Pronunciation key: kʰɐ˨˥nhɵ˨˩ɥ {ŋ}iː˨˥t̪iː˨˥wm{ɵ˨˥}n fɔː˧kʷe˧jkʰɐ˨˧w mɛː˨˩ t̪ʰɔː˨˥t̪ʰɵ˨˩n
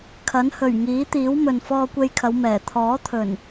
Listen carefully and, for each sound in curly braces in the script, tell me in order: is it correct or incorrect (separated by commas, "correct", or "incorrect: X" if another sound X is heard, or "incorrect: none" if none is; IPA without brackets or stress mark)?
correct, incorrect: ɵ˨